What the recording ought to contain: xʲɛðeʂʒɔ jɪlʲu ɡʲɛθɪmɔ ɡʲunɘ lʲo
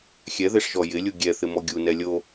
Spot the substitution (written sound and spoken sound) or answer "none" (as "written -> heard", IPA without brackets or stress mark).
ɘ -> ɛ